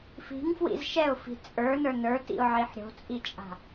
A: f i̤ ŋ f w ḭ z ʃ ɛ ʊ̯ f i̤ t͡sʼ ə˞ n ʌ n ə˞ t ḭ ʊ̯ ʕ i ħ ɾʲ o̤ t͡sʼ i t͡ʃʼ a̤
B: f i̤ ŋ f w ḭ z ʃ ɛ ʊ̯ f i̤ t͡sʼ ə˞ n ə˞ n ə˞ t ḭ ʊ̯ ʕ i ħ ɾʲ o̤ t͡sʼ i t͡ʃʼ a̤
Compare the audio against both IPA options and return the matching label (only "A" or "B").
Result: B